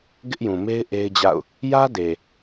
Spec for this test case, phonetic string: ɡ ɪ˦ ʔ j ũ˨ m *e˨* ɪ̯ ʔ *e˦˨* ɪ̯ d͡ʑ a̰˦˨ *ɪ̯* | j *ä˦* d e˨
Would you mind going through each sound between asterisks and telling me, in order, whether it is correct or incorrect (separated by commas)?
incorrect, incorrect, incorrect, correct